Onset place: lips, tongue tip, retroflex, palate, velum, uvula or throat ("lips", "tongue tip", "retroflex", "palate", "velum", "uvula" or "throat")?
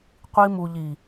uvula